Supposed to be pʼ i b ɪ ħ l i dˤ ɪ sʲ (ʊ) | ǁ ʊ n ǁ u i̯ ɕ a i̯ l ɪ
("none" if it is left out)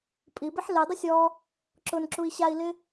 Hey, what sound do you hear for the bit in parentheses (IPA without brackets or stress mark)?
ɔ